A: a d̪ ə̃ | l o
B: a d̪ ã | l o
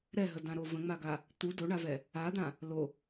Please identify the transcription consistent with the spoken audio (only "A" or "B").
B